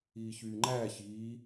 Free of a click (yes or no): no